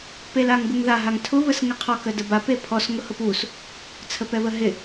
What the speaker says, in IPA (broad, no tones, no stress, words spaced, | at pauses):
pelaŋɡuŋða ɦaŋtʰʊ βəsŋɪqʰɔk ədəbap epʰɔs ŋʊhʊpus | t͡sʰəpɛβəɦɪ